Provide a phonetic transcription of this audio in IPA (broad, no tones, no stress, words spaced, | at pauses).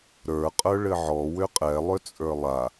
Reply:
ɾə˞qʼə˞ ɭɘʕɔ wʏqʼɛ lˠʏt͡sʼə˞lˠa